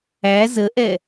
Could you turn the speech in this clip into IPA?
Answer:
æ z ə ʔ ɛ

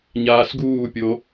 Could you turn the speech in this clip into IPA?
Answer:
ɲ aː s ɡ uː pʲ o

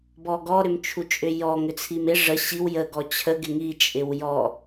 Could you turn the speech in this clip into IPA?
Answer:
b ɔ ɡ ɔ ɾ ʏ m t͡ʃʰ u t͡ʃʼ ʏ j ɔ ŋ ʏ t͡sʰ i m ɪ ʐ ə ɕ i w j ə ɡ ɔ t͡ɕʰ ə ɡ ɪ ŋ i t͡ʃʼ ɪ w j ɔ

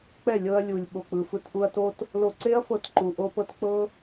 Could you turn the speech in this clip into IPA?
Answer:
k͡p ɛ˦˨ lʲ ɤ˧ ɐ̯ lʲ u˨ lʲ ɓ o˨ k͡p ɯ˨ f ɯ˧ t ʔ u˧ ɐ̯ t o˦ t | l o˧ ǀ e˦ ɐ̯ f ɤ˧ t ǃ u˨ ʔ o˧ p ɤ˧ t k͡p ɤ˦

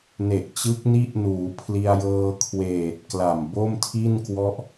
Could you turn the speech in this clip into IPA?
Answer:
n e˨˩ ʔ t͡ɕ ɯ˦˥ k̚ n i˦˥ ʔ n uː˩˦ pʰ l i˧ a̯ j ɤː˧ kʰ w eː˨˩ t̚ k l a˨˩ m b o˥˩ m tʰ i˥˩ n k w ɔ˦˥ ʔ

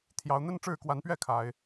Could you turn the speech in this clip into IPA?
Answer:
t̪ʰ j ɑ˨˦ ʊ̯ n̪ ə˦ n ʈ͡ʂ ɻ̩˥˨ k w a˨˦ n p ɥ ɛ˥˨ kʰ a˨˦ ɪ̯

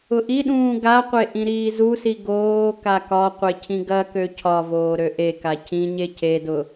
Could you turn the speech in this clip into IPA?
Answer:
ʊ ʔ i ɗ ũː ɡ a qʷ e ʔ ĩ ɾ iː z u s i ɡ oː k a k ɒ qʷ e cʰ ĩ ɡ ɐ k ø cʰ ɒ v oː ɾ ø ʔ e k a cʰ ĩ ɲ e cʰ e d ʊ

